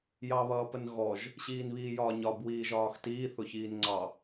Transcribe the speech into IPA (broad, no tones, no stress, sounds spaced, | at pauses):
j ɑ β ʌː p ə n ɣ ɔ ʒ | ɕ iː n β iː j ɒː ɲ ɒ b w iː ʒ ɒː x t iː θ ʊ ç iː n ŋ͡ǀ ɑ